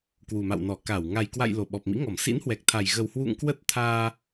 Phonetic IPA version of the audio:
k w u˨˩ m a̰˧˨ w n ɔ˧˩ k a˧˩ w ŋ a˨˩ j k w a̰˧˨ j l o˧˩ ɓ ɔ˨˩ p̚ m ḭ˧˥ ŋ ɔ˧˩ m s ḭ˧˥ n h w ɛ˨˩ k̚ t̪ʰ a˨˩ j ɣ ə˨˩ w h w ṵ˧˨ ŋ k w ə˦˥ t̚ t̪ʰ aː˧

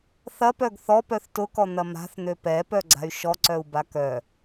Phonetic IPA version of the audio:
θ ɐ p œ ɡ θ ɔ p œ θ t ʊ k ɔ n̪ ɐ m a̤ θ n̪ ø p ɛ p œ ɡ͡ǀ a̤ y̯ ʃ ɔ ǀ œ u̯ b a k œ

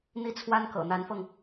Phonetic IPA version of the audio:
n̪ i˥˩ t͡sʰ w a˥ n k ɤ̰˨˩ n̪ a˧˥ n f ɤ˧ ŋ

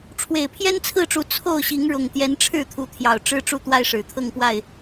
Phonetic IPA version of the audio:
ʈ͡ʂʰ w e˨˩ ɪ̯ pʰ j ɛ˦ n t͡sʰ ɹ̩˥˨ ʈ͡ʂ u˨˦ t͡sʰ o˥˨ ʊ̯ ɕ i˨˦ ŋ ɻ ʊ˨˩ ŋ t̪ j ɛ˨˦ n ʈ͡ʂʰ ɻ̩˥˨ t̪ʰ u˨˦ t̪ʰ j ɑ˨˩ ʊ̯ ʈ͡ʂ ɻ̩˦ ʈ͡ʂ u˥˨ t̪ w a˦ ɪ̯ ʂ ɻ̩˨˩ t̪ʰ ɤ˥˨ ŋ p w a˥˨ ɪ̯

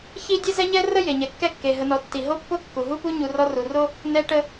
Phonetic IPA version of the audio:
ç i˥ dʲ e˥ z ɛ˥ ɲ ɛ˥ r ə˥ j e˩ ɲ ɛ˩ kː ɛ˦ kː e˩ ɦ ə˨ n ɔ˨ tː i˩ ɦ o˥ pː o˥ kː u˩ ɦ u˥ p u˥ ɲ u˨ r ɔ˦ r u˩ r o˥ | n ɛ˦ ʈ ə˦

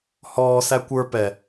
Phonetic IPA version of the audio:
h ɔː s æ kʷ ə˞ p ɛ

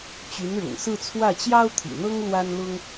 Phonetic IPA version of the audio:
t͡ɕ y˧˥ n ɻ ʊ̰˨˩ ŋ s ɹ̩˥˧ t͡sʰ w ä˥˩ t͡ɕ j ɑ˥ ʊ̯ t̪ʰ ḭ˨˩ n̪ ɤ˥ ŋ l w a˥ n l ʊ˥ ŋ

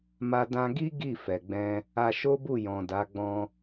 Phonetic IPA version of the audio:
m a˧ d ã˧ ɡ i˦ ɡ i˦˨ f ɛ˨ ɡ͡b ɛ̃˧ | a˧ ʃ o˦ b u˦˨ j ɔ̃˨ d a˨˦ ɡ͡b ɔ̃˧

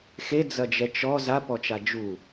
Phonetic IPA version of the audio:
x e d͡z ɐ d͡ʒ ɛ t͡ʃ ɔ z a p ɔ t͡ʃ a d͡ʒ u

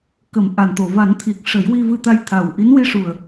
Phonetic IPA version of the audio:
k ə˨˩˦ m ʔ a˨˩ n t̪ o˨˩ v a˨˩˦ n t̪ʰ i˨˩ k̚ ʂ ə˨˩˦ j w i˧ v ɨ˧ t̪ a˧ j t̪ʰ a˨˩ w ʔ i˧˥ n w i˧ ʂ u˨˩ ə̯

